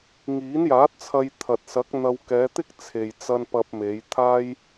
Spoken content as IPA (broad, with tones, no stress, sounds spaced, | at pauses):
ŋ iː˨˥ n j aː˨˥ t̚ t͡sʰ ɐ˧ j t̪ʰ ɐ˨ t̚ s ɐ˨˥ k̚ n̪ ɐ˧ w k ɛː˨˧ t̪ ɪ˥ k̚ t͡sʰ e˨ j t͡s ɐ˧ n p ɐ˧ p̚ m e˨˧ j t̪ʰ aː˥ j